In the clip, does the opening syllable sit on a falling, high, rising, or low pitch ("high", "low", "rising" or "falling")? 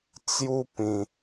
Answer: high